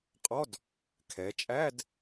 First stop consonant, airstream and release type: ejective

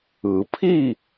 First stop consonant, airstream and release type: aspirated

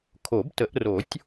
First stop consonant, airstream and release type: aspirated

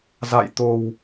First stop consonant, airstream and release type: plain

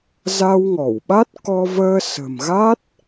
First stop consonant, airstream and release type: implosive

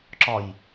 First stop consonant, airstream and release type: click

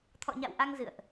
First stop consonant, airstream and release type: aspirated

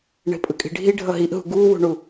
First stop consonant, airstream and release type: ejective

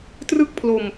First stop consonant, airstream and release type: plain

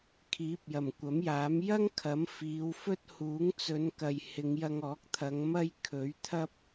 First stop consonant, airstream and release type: aspirated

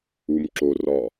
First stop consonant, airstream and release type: click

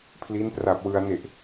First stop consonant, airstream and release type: aspirated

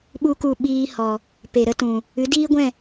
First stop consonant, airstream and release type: implosive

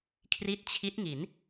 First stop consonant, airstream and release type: aspirated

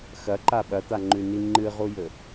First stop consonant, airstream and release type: click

